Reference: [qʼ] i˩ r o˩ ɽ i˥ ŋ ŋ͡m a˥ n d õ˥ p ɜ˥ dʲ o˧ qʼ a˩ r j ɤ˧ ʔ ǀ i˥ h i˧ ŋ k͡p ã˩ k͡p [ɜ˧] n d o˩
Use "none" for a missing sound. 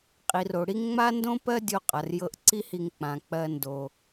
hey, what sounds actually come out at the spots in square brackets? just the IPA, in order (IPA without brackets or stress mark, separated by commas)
qʼ, ɜ˧